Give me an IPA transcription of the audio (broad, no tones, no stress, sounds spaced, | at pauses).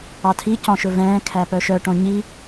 ɑ tʰ i c ɔ̃ ʃ ɵ v ɛ̃ː kʰ æ p œ ʃ œ ʈ õ ɲ i